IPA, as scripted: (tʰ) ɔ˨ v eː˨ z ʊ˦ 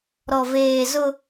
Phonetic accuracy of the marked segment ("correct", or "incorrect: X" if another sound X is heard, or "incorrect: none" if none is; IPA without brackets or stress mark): incorrect: ɾ